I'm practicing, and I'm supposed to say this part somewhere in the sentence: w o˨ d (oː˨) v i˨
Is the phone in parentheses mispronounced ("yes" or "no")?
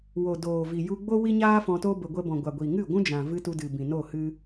no